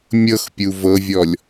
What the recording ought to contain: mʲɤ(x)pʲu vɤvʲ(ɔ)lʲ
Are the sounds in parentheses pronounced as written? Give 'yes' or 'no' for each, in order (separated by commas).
yes, yes